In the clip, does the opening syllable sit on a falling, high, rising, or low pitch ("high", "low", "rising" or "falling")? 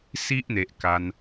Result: high